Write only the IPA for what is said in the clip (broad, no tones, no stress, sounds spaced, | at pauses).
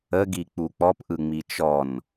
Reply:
ə ɡ i k͡p u k͡p ɔ p ʔ ɯ ŋ͡m i t͡ʃ ɔ n